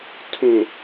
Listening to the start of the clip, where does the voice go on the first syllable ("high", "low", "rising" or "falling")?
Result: low